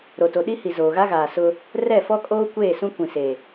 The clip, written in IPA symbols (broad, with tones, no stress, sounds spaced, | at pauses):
ɾ o˨ t o˨ ɗ i˦ h i˨ z oː˨ ɣ a˦ ɣ aː˨ s ʊ˦ | r ɛ˦˨ f ɔ˦ kʼ oː˦ kʷ eː˦˨ s ũ˦ kʷ ĩ˨ s e˨